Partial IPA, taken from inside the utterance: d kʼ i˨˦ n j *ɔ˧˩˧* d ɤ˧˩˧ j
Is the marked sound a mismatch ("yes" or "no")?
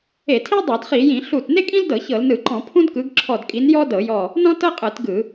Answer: yes